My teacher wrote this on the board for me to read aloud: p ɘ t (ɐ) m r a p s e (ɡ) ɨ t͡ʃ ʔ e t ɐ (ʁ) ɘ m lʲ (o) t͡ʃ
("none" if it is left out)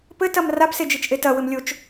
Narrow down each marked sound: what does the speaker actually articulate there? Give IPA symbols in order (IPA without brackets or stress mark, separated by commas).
ɐ, d͡ʒ, w, o